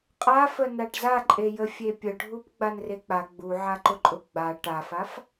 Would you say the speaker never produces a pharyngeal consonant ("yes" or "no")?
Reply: no